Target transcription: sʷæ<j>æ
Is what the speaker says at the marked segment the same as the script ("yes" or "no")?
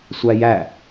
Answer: yes